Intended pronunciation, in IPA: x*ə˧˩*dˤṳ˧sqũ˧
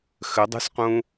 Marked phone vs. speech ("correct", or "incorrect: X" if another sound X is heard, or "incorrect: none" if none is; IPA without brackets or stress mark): incorrect: ə˩˧